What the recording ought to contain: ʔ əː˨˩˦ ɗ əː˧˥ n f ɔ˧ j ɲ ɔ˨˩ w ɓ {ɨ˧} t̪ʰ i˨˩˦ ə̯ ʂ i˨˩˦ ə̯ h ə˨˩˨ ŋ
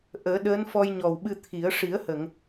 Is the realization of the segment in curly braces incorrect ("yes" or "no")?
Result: no